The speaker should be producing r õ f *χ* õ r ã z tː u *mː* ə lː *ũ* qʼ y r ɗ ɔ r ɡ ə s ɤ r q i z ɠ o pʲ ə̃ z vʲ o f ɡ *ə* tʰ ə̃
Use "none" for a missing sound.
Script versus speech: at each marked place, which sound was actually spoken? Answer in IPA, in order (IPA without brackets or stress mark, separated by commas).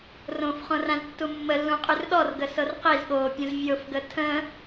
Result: χ, mː, ũ, ə